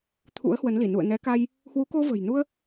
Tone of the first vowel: rising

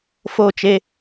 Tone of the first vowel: falling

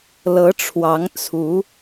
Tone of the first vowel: rising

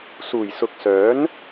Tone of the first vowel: low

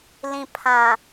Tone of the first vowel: low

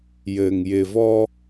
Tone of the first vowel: low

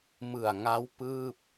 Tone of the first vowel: low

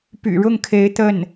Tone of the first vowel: low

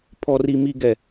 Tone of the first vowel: high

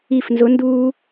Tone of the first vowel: falling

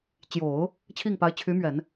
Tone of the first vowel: low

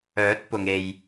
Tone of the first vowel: rising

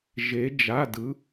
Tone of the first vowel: rising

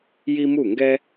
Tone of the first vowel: high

